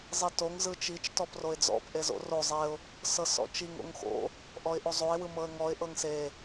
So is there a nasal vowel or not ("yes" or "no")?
no